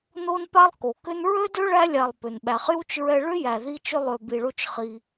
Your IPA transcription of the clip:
no˥npa˥lˠ ko˩kʏ˥n ɹø˥dø˥ ɭæ˥lʲa˨lˠpʏ˩n ɓæ˨χju˥t͡ʃɹɛ˦ ɭʏ˥jæ˨ ði˦t͡ʃʏ˦ lˠø˨bi˨ɭo˦t͡ʃ χi˨

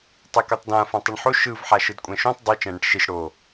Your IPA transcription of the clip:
tˤekotˤdã fãtˤɯɳħo ʃɯv ħaʃɯdkʷʼɛ̃ʃũtˤ dˤi t͡ʃɛ̃ɽɛ̃ʈʃiʃ ɽo

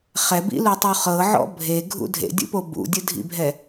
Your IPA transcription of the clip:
χɛbḭlutˤu χɤʕɔ̰ bʱeɡʱṵ dʱḛdʲṵpo bṵdʲɯdʱḭbʱɛ

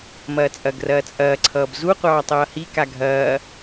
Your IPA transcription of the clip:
mɐːt͡sʼɐɡrɐː t͡sʼɐːǀʰʌːb zuqʷɑː tˤʌːhika ɡʱɐː

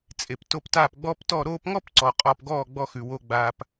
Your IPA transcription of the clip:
t͡sʼe˨pto˧p taː˦˨pɡ͡bɔː˦ptɔ˦˨ ɾoː˧pŋɔ˦p ǀɔ˨ qʼɔː˧pɡɔː˦˨ɡ͡bɔ˧xʉ˨ wo˧ɡ͡baː˧p

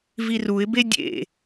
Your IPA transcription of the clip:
viruɪ̯be dʲḛ

